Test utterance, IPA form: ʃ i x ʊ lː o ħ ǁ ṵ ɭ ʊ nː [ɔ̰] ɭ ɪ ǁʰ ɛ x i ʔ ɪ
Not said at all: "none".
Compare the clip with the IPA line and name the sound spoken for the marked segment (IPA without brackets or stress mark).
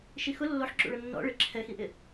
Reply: ɔ̰